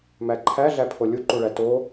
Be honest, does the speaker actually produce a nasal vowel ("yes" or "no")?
no